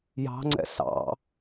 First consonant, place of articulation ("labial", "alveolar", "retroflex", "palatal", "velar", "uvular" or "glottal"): palatal